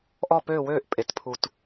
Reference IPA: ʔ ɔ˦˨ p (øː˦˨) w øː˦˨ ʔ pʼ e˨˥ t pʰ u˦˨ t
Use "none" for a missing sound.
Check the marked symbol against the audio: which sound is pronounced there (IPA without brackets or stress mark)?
øː˦˨